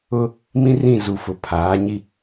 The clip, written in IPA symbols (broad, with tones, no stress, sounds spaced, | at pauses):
ʊ˦ | m ĩ˦ r ĩ˦˨ z u˨ f ʊ˨ pʰ aː˨˦ ɲ i˦